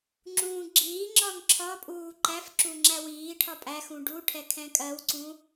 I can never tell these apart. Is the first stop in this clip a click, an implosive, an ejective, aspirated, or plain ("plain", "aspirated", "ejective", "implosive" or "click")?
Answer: click